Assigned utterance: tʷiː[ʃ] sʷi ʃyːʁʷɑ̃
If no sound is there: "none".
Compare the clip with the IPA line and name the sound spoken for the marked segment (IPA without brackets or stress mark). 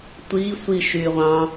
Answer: none